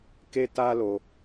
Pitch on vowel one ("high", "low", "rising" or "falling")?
high